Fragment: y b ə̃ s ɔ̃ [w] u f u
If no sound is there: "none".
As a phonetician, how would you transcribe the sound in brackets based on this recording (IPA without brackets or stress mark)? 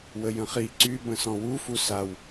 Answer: w